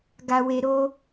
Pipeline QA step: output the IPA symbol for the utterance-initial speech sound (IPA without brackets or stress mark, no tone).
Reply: ɡ